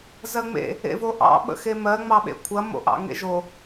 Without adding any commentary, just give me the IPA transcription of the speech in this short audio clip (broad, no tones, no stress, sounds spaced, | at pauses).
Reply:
z ɜ ŋ͡m ḛ | ḛ v o ʔ ɑ̰ ɓ ə̰ x e m ɜ ŋ͡m ɑ ɓ ḛ kʷʰ ɐ m o̰ ʔ ɑ̰ ŋ ḛ ʒ o